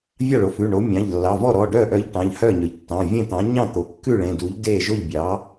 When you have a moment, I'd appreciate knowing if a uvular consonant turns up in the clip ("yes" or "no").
no